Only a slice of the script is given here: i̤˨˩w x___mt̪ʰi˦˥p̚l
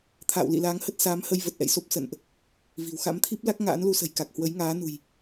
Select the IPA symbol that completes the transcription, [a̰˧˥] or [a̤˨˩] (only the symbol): a̰˧˥